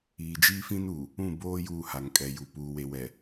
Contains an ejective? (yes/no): yes